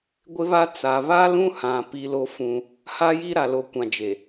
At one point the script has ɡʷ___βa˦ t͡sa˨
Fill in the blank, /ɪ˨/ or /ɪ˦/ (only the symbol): ɪ˦